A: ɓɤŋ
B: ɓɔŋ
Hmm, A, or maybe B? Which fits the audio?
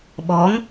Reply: B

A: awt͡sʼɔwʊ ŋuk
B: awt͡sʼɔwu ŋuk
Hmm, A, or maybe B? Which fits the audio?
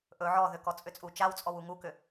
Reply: B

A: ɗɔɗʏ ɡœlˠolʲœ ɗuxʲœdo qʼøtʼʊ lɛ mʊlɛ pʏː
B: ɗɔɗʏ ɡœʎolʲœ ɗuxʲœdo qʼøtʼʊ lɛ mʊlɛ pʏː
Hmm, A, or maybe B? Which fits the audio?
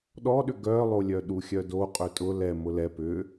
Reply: A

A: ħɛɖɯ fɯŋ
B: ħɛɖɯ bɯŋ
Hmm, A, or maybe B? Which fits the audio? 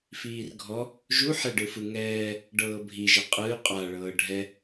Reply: A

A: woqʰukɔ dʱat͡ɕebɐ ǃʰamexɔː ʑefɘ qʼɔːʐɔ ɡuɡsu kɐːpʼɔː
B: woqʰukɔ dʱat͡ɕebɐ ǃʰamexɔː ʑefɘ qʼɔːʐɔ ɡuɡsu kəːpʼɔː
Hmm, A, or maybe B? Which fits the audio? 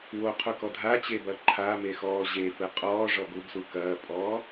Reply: A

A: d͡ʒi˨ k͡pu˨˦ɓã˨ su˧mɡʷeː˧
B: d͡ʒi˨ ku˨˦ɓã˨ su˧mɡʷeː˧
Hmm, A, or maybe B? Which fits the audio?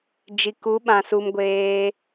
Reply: B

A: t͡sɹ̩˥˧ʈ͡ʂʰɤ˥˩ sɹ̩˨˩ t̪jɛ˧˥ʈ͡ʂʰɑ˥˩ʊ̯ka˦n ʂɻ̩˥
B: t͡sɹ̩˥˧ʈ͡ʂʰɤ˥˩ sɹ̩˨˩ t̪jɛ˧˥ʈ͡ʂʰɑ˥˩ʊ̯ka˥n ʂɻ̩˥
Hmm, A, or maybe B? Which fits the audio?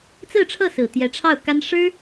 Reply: B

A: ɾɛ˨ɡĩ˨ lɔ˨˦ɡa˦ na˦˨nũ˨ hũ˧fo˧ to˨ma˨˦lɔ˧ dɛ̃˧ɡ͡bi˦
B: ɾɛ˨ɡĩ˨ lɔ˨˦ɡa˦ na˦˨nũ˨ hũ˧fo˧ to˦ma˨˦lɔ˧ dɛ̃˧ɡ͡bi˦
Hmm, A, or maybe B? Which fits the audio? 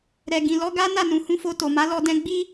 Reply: A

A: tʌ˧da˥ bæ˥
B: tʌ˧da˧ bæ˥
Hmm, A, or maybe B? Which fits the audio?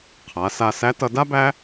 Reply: A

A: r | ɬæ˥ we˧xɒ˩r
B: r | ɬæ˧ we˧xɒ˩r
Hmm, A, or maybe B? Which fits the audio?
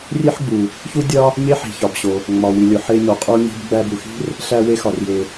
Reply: B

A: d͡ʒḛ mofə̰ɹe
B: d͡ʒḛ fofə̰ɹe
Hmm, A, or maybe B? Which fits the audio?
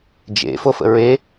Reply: B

